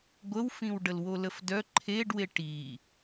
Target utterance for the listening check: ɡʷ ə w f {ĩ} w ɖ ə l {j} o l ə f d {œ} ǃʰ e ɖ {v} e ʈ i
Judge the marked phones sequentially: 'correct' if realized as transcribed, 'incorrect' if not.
correct, incorrect: w, correct, incorrect: w

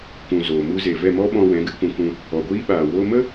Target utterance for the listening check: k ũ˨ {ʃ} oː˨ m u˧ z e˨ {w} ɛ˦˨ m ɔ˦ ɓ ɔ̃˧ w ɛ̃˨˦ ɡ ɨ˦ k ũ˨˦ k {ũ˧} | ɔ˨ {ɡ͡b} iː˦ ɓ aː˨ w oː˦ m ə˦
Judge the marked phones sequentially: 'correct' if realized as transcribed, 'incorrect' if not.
incorrect: z, incorrect: v, correct, incorrect: ɡʷ

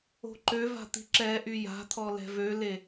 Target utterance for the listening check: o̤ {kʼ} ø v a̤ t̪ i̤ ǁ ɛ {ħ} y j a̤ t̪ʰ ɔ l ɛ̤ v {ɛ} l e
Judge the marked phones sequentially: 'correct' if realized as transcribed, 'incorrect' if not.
incorrect: ǃ, incorrect: ʔ, incorrect: ø

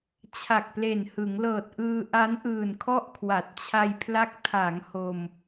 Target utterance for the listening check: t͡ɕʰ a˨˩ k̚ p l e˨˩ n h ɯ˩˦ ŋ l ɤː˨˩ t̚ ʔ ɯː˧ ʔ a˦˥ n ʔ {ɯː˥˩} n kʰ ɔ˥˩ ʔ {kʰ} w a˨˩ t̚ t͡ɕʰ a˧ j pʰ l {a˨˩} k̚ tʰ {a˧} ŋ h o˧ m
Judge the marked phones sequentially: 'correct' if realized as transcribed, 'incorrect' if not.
incorrect: ɯː˨˩, correct, incorrect: a˦˥, incorrect: a˩˦

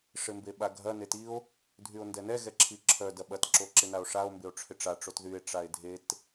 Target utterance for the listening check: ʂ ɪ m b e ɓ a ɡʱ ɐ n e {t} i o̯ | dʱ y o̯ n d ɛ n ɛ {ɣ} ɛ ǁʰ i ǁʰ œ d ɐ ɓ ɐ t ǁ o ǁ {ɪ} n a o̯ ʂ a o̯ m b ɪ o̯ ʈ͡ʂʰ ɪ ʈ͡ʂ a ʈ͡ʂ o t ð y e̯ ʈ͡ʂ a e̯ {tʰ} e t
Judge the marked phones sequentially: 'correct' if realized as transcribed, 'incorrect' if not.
correct, correct, correct, incorrect: dʱ

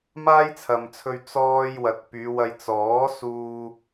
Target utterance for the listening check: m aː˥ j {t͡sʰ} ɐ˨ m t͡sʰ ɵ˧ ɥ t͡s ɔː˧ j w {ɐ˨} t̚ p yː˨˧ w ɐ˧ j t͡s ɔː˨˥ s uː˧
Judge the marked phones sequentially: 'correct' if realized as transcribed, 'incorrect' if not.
correct, correct

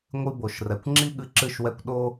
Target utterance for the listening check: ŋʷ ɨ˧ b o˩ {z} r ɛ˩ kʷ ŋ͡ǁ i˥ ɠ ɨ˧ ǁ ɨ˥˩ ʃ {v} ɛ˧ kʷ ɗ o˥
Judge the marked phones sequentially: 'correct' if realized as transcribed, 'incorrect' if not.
incorrect: ʃ, incorrect: w

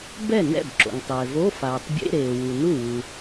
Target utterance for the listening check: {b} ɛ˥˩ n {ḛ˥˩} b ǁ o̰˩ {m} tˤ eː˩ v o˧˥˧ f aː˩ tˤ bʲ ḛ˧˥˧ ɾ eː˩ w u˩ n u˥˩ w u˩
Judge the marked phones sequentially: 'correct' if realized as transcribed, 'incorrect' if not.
correct, incorrect: ɛ̰˥˩, incorrect: ŋ

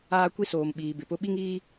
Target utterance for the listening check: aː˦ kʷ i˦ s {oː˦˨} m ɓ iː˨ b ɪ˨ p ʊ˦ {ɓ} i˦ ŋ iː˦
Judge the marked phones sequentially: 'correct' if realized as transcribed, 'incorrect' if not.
incorrect: oː˨, correct

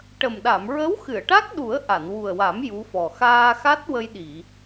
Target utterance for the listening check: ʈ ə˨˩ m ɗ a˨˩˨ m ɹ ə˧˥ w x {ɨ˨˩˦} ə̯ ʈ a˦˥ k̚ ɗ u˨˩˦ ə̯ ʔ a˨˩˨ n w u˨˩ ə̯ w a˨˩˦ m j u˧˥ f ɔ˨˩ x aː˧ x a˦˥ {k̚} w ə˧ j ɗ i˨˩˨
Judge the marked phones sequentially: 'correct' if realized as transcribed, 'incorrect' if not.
incorrect: ɨ˨˩˨, incorrect: t̚

